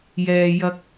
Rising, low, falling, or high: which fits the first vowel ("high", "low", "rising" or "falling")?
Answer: low